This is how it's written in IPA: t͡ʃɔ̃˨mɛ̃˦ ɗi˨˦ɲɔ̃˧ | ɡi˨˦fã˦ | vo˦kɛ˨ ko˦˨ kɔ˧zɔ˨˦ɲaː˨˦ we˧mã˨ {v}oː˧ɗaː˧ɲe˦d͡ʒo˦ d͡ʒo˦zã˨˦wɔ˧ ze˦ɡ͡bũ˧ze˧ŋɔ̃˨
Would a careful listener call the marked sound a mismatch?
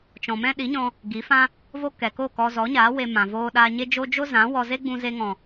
no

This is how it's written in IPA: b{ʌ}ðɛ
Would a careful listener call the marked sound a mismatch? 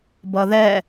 no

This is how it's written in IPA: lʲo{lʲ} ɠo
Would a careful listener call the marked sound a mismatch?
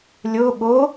yes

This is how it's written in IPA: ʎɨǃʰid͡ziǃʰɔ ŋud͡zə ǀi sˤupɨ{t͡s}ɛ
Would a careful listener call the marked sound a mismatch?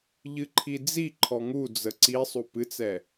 no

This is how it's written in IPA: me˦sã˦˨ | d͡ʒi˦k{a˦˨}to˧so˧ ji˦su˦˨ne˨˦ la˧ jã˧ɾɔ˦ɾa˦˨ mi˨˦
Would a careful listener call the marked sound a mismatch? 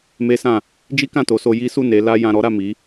yes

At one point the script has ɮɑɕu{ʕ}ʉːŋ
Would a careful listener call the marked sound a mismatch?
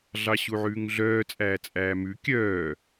no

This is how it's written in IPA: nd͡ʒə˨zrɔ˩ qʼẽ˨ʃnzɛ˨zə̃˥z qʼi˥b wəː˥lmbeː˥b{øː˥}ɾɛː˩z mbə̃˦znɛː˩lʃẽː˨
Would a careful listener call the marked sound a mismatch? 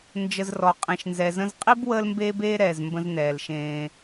yes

